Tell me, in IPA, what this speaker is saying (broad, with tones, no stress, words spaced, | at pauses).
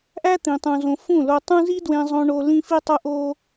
ʔæ˦ t̪ĩ˧tˤũ˧ zõ˧ fũ˦˨lo˧tˤũ˦ zi˦dwẽ˧zˤõ˧ ɳo˧ lĩ˦fi˦tˤo˦ ʔo˦